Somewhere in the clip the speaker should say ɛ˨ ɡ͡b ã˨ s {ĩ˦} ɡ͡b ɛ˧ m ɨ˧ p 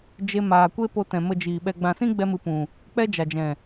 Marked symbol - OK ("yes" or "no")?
yes